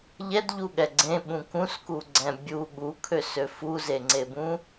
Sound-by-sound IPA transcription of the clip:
ʎ ɛ d ʎ u ɠ ɛ ɡ͡ǀ ẽ ɓ ũ k ũ s k u ɡ͡ǀ ɛ̃ bʲ u ɠ u kʰ ø s ø f u z e ŋ͡ǀ e b ũ

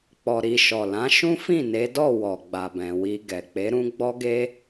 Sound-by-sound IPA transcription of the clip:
k͡p ɔ˧ ɾ i˧ ʃ ɔ˨ l ã˨˦ ʃ ũ˦ f ĩ˦˨ n e˨˦ d ɔ˦˨ w ɔ˨ ɡ͡b a˨ b ɛ̃˨ w i˧ ɡ ɛ˨ k͡p e˨˦ ɾ ũ˦ ɡ͡b ɔ˦ ɡ e˦

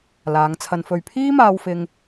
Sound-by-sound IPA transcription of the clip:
l aː˨˧ ŋ t͡sʰ ɐ˧ n f ɵ˨ ɥ pʰ iː˥ m aː˧ w f ɪ˧ ŋ

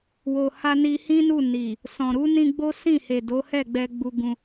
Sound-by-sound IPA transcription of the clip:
w o˨ h a˧ n i˧ h ĩ˦ n u˦˨ n i˨ | s ɔ̃˨ ɾ u˨˦ n ĩ˧ ɡ͡b o˦ s ĩ˦˨ h e˨ d o˨˦ h ɛ˦˨ ɡ͡b ɛ˧ ɡ͡b u˧ ɡ ũ˧

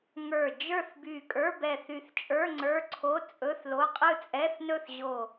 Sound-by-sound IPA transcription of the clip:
ŋ ə˞˧˩ d͡ʒ ə˞˥˨ θ b y˧˩ kʼ ə˞˧˥˧ b ɛ˧˩ θ y˧˩ θ t͡ʃʼ ə˞˧˥˧ ŋ͡ǀ ə˞˧˥˧ ǀʰ o˧˥˧ t͡sʼ ɵ˧˥˧ θ l o˧˥˧ qʼ ɯ˥˨ t͡sʼ ɛ˧˥˧ θ n ɵ˥˨ θ ʑ o˧˩

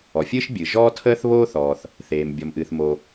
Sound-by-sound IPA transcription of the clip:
ɔ˩ fʲ ɨː˥ ʃ bʲ ɨ˩ ʒ ɔː˥ tʰ əː˥ θ β oː˥ θ ɔː˩ θ | θ eː˩ m bʲ ɔ˩ m ʔ ɨː˩ θ m o˩

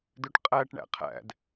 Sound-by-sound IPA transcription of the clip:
d ø ʈ qʼ æ ʈ ɳ æ̰ qʰ æ̰ d

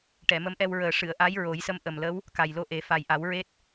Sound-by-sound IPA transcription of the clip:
ʈ ɛ˨˩˨ m ə˧˥ m ʔ ɛ˧ w ɹ əː˨˩ ʂ ɨ˨˩˨ ə̯ ʔ a˧˥ j ɹ o˨˩˦ j s ə˧˥ m ʔ ə˨˩ m l ə˧˥ w | k a˨˩ j l o˧ ʔ e˨˩˦ f a˨˩ j ʔ a˨˩˦ w ɹ e˦˥ t̚

